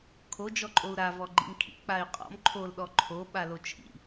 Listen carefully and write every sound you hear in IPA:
kʰ o d͡ʒ ɔ ǃʼ o u̯ ɾ a v ɔ ɡ͡ǃ ḭ m kʰ ḭ k͡p a y̯ qʼ ɔ̰ m ǃʰ o l ɗ ɔ ǃʰ o ɓ a l o t͡ʃʰ ḭ

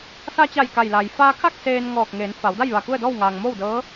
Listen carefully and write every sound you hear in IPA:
s a˧ t͡ɕ a˧˩ j k a˧˩ j l a˩ j f aː˧ kʰ a˥˨ k̚ s eː˧ n ŋ ɔː˧˩ k̚ ŋ eː˩˧ n f a˩˧ w d a˥˨ j ʋ a˧˩ k u˥˨ ə̯ d ɔː˥˨ w ŋ aː˩ ŋ m oː˥˨ w d ɤː˧˥

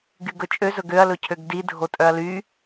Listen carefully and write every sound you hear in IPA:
ɡ y ɡ ɵ t͡ʃʼ ø z ɵ ɡ ø ɐ̯ l ɵ cʰ ø ɡ d i dʱ o tʼ œ ɐ̯ l y

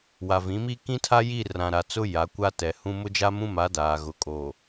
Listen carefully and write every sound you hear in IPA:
w a˨ v ĩ˨˦ m iː˦ k ĩ˦ tʰ a˦ j i˦˨ r ã˨ ɾ a˨ t͡s ʊ˦ j a˨˦ kʷ a˦ t ɛ˨ h ũ˦ m ʊ˦ d͡ʒ a˦ m ũ˦ m a˨˦ d aː˨ ɣ ʊ˨ kʼ oː˨

